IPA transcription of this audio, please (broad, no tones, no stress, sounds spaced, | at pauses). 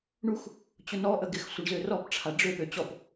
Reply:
ɳ u x | t͡ɕ ʊ n ɔ ʔ ə ɡ ɪ x sʷ ə ɳ z ø r ɔ p ʈ͡ʂʰ a ɖ͡ʐ ø p ø t͡ɕ ɔ p